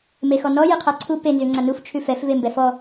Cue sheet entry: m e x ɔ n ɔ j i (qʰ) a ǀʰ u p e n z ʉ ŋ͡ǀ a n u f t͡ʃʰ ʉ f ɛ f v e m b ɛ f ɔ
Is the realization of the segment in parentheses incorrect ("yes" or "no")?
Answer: no